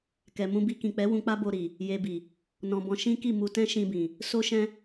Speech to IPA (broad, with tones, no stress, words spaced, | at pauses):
kɛ˨ mũ˧bi˧kĩ˨k͡pɛ˨˦ wũ˧k͡pa˦ bo˧ɾi˨ | je˧bi˨ | nɔ̃˧bɔ̃˧ ʃĩ˦ki˦˨ mu˧ tɛ̃˦ʃĩ˧bĩ˨ | so˦ʃɛ̃˦